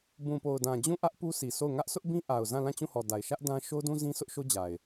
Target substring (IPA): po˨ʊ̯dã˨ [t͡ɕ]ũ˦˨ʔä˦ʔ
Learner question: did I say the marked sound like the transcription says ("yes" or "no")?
no